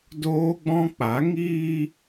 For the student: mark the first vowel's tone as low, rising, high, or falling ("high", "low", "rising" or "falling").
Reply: high